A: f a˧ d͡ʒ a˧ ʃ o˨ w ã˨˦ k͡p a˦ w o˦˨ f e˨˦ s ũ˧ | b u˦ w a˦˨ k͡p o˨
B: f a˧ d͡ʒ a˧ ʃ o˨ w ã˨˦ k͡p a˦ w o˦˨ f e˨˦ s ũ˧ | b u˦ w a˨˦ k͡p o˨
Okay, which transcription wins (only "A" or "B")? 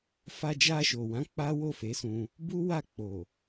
A